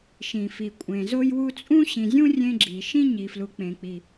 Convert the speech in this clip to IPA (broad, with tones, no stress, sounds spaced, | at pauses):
ʃ ĩ˩ f i˩ kʷʼ ẽ˩ z o˦ j w u˦ t͡sʼ ũ˦ ɕ ĩ˩ zʲ ũ˦ rʲ ẽ˦ ɡ͡ǁ i˩ ʃ ĩ˦ ɲ i˩ f l u˩ k͡p ẽ˩ k͡p i˩